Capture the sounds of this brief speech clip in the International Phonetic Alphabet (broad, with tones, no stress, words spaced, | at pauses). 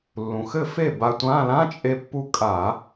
lːũ˩xɘ˥˩fe˥˩ ba˧tʷã˧˥˧ lã˧˥˧t͡ʃʼe˧pːu˧ kʼa˧˩˧